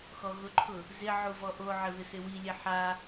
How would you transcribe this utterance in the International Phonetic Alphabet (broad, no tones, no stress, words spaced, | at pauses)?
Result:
xɔɣʊǃʰʊ | zɪ ʕuvɔʔoʕɪ βɪsɪwilʲe ħa